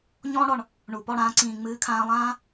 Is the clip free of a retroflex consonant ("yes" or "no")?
no